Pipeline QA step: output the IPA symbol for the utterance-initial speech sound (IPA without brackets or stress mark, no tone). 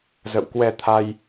z